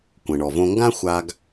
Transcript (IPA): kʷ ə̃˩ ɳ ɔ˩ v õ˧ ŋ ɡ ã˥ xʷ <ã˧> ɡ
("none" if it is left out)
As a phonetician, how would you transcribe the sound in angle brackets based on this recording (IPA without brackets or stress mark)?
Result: a˧